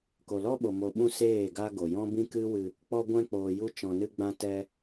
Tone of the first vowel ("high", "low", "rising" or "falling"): low